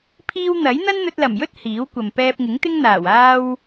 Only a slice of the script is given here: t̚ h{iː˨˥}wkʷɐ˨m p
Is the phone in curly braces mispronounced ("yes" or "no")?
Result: no